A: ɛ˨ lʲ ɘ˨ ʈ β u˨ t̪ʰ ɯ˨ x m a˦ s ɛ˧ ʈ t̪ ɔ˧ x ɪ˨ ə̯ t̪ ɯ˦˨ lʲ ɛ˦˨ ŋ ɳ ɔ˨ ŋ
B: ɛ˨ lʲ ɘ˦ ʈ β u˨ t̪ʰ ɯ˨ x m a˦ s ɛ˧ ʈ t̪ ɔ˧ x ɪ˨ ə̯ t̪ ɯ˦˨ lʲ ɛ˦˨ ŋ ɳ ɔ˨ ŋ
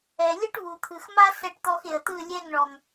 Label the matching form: B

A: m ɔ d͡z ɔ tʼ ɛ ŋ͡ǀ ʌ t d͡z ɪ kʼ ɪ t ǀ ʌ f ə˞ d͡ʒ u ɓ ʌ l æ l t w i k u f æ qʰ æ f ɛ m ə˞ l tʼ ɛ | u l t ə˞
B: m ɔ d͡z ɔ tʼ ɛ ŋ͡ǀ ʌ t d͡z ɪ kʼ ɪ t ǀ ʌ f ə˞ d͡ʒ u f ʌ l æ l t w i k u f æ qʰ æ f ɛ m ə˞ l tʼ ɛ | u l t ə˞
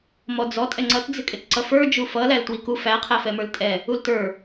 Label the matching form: B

